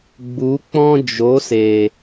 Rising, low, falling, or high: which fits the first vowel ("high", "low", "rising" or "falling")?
rising